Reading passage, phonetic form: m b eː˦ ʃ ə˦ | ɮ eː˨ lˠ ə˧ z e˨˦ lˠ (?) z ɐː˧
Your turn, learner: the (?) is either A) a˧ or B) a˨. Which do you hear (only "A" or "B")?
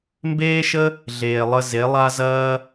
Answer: A